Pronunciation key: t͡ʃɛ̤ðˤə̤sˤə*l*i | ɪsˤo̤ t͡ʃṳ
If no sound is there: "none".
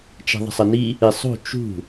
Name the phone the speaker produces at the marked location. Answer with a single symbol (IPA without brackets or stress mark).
n